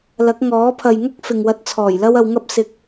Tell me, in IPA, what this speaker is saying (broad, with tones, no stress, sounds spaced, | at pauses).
l ɐ˨˥ k̚ ŋ ɔː˨˥ pʰ ɐ˨ j ŋ ɐ˥ k̚ f ɪ˨ ŋ w ɐ˧ t̚ t͡sʰ ɔː˨˩ j l ɐ˥ w ɐ˧ w ŋ ɐ˥ p̚ s ɪ˧ k̚